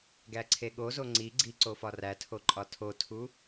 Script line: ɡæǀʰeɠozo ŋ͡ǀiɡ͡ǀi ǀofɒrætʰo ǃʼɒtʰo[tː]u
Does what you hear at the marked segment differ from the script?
yes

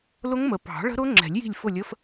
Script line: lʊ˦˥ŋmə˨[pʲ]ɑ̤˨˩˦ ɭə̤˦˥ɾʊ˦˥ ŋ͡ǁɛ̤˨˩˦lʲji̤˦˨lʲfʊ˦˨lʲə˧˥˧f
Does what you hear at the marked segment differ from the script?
yes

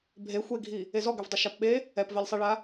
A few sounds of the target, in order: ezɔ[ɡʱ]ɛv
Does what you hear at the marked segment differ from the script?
yes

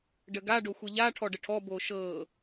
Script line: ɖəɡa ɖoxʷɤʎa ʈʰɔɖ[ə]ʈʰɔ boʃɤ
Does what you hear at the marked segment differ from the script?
no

